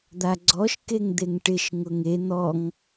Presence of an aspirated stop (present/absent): absent